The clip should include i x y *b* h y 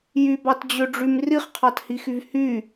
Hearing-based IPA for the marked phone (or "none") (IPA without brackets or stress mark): v